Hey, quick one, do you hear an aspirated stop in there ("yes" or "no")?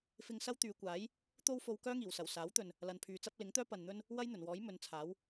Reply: yes